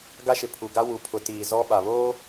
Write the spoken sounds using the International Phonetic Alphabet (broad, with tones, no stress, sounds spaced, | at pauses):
ɡ a˦ ʃ ɪ˨ pʰ u˨ ɡ a˦ w u˨ pʰ ʊ˨ t iː˨ z ɔ˦ ɓ a˨ β oː˦